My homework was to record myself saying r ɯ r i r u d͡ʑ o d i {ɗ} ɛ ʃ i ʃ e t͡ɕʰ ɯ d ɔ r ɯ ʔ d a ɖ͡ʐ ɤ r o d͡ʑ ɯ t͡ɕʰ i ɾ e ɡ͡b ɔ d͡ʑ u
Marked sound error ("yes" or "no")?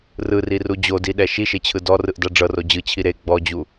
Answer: no